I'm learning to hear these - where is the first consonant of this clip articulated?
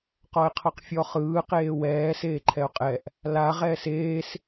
uvula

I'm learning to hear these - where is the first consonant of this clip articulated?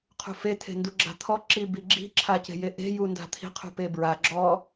uvula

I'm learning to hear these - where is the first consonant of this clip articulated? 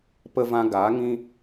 lips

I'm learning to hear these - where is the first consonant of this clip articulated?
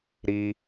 tongue tip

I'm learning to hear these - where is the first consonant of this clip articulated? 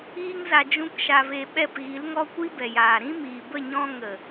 velum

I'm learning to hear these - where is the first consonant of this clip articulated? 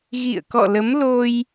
velum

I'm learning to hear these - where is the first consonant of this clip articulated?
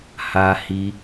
throat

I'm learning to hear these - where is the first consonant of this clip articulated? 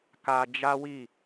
velum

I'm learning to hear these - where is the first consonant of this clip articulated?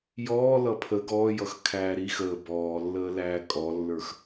palate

